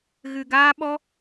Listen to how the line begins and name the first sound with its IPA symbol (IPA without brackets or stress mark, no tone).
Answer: ɣ